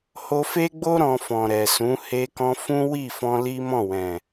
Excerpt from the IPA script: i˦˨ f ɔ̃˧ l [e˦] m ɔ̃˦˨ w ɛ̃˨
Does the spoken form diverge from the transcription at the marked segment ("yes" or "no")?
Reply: yes